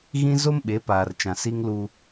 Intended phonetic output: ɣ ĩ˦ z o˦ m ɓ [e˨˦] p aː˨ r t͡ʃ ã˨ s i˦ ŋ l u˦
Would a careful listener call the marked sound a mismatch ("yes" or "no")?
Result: no